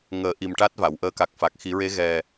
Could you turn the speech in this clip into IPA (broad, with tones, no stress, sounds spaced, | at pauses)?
ŋ əː˨˩˦ ʔ i˨˩ m ʈ a˦˥ t̚ v a˨˩˨ w ʔ əː˧ k a˨˩ k̚ f a˨˩ k̚ x i˨˩˦ ɹ e˧˥ ɣ ɛ˨˩